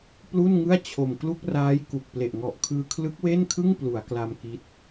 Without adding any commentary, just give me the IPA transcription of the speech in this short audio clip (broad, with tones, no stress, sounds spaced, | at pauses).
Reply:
p l u˥˩ n ŋ ɯ˥˩ a̯ t͡ɕʰ o˨˩ m k l u˥˩ k̚ r aː˦˥ j k u˨˩ k̚ p l e˨˩ ʔ ŋ ɔ˨˩ ʔ kʰ ɯː˧ kʰ l ɯ˦˥ k̚ w e˥˩ n kʰ ɯ˥˩ ŋ p l u˩˦ a̯ k l a˧ m k i˦˥ t̚